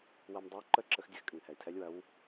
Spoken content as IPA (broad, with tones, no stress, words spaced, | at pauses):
wɐ˧mdˤə˧˥w ǃə˥˨ǁə˧x dʲɘ˥˨xkʼɨ˩ŋhɛ˩i̯tʰɛ˧˥lʲ wɐ˧˥w